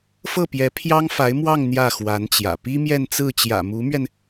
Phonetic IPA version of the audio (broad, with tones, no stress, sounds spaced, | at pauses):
f ɤ˥˩ p j ɛ˧˥ pʰ j ɑ˥ ŋ f a˧˥ ɪ̯ m w ɑ˥˧ ŋ n̪ j ä˥˩ x w a˧˥ n t͡ɕ j ä̰˨˩ p i˥ m j ɛ˥˧ n t͡s ɹ̩˥˩ t͡ɕ j ä̰˨˩ m u˧˥ m ɥ ɛ˧ n